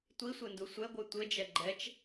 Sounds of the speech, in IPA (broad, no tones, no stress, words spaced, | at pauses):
tʷisʷendu sʷɛɡʷɨ tʷɘd͡ʒɛ ɡ͡ǃɛt͡ʃ